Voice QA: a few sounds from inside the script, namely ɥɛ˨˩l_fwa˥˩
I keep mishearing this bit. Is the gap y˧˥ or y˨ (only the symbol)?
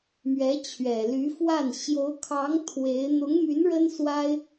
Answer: y˧˥